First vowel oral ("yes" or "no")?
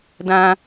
no